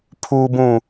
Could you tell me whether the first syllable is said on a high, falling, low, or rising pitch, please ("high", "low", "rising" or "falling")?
low